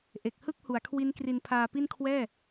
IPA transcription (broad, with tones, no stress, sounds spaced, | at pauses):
ʔ e˨˩ k̚ h ɯ˥˩ k̚ h u˩˦ a̯ kʰ w i˦˥ n k r i˧ n pʰ aː˧ p i˥˩ n kʰ w ɛː˥˩